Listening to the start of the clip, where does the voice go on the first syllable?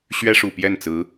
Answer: high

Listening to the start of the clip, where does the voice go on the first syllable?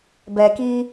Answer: low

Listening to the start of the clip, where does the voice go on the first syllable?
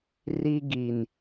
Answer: high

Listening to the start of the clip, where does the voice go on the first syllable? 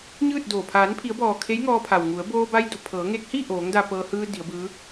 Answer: falling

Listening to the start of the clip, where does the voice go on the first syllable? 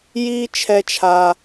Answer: high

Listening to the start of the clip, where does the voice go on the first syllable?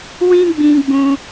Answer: high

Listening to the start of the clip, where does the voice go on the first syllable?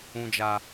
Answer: low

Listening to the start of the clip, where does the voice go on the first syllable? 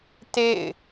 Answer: falling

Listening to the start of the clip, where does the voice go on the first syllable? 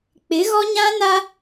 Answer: rising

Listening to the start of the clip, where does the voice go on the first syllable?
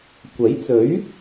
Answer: rising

